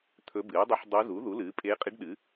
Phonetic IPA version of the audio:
t̪ʰɵ˧˥bɨː˩˥dˤɨ˧˥ħ dˤu˧˥ zu˩˥ðu˩˥ lɨː˩˥pʼeː˧˥qʼi˧˥ɖ ɗɨ˩˥

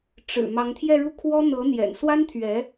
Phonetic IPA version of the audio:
ʈ͡ʂɻ̩˨˩ mɑ˧˥ŋt̪ʰjɛ˥˧ɻu˥˩kʰwɔ˥ n̪ɤ˧˥n̪jɛ̰˨˩n swa˥nt̪ʰɥɛ˧˥

